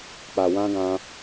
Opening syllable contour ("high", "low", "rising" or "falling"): low